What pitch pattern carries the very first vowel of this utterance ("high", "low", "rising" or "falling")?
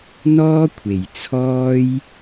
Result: high